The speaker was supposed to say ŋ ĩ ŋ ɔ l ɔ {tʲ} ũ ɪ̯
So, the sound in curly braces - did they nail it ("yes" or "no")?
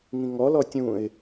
yes